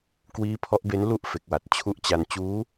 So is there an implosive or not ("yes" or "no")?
no